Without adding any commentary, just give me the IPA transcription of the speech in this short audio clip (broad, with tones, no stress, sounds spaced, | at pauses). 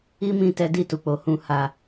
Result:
i˦ m ĩ˧ t ɛ˧ d i˧ t u˨ k͡p o˨˦ h ũ˧ h a˧